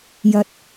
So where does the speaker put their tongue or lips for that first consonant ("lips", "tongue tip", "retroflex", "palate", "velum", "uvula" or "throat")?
palate